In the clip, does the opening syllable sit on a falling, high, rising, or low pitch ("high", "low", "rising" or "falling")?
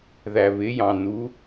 low